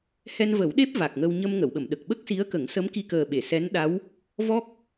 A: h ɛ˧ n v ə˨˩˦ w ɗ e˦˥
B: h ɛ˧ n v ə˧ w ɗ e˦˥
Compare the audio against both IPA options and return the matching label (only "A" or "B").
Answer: A